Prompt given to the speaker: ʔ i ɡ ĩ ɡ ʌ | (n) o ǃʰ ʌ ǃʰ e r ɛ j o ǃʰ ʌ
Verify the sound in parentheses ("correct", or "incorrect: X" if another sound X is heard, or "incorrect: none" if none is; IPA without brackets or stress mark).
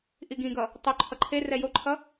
incorrect: tˤ